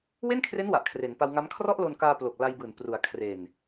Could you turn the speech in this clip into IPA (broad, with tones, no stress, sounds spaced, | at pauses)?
w e˥˩ n kʰ r e˦˥ n w a˨˩ ʔ kʰ r e˩˦ n p a˧ w ŋ a˦˥ m kʰ r ɔ˥˩ ʔ l o˧ n k aː˧ p l o˨˩ k̚ l a˧ j b ɯː˨˩ n p r u˩˦ a̯ kʰ r e˨˩ n